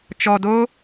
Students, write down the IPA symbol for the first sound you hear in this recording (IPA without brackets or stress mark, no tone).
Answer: t͡ʃ